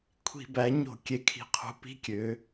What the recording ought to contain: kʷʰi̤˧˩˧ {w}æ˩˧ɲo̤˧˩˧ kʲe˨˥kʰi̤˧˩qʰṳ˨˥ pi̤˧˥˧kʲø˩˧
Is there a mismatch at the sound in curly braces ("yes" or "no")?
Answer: yes